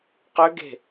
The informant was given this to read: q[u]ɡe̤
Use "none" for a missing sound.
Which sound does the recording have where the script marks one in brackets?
ø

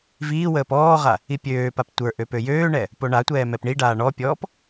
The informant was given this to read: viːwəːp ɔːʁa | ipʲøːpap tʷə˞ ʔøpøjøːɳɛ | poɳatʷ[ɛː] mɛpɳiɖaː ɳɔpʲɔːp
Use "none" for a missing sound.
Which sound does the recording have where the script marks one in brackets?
ɛː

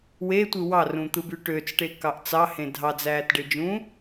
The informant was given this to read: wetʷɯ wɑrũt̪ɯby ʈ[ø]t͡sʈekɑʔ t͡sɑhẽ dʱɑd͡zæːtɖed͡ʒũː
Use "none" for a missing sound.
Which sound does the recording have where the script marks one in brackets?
ø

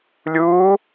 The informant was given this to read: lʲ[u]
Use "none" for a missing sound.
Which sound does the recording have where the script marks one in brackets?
uː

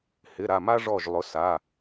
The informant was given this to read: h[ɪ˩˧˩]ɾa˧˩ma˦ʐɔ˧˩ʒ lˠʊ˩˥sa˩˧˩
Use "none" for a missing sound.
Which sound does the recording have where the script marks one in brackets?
ɪ˩˧˩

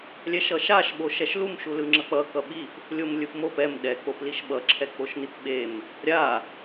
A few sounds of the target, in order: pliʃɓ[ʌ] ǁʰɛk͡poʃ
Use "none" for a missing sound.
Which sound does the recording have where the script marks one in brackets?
ʌ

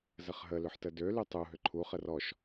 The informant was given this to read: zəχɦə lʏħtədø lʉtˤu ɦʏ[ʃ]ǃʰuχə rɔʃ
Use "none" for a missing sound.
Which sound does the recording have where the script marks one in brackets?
none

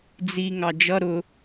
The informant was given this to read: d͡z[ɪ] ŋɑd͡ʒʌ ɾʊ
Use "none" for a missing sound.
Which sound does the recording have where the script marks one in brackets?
i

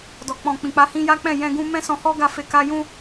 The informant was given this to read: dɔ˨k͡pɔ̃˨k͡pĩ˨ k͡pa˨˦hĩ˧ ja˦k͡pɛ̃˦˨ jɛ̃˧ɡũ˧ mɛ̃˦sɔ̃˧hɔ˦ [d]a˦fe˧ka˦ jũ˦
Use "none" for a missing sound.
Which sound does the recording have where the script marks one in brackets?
ɡ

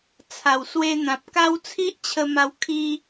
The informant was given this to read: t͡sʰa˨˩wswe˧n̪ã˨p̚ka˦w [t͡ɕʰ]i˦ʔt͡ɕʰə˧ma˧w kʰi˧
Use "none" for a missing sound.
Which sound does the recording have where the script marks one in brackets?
t͡sʰ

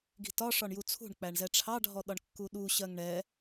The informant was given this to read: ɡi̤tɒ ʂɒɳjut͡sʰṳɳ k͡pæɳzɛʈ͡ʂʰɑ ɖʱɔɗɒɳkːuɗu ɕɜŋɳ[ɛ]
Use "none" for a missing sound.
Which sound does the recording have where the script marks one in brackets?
ɛ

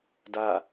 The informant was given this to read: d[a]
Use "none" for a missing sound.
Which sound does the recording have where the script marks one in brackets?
a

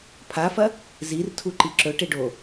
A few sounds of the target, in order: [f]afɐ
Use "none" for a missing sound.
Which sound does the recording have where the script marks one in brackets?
pʰ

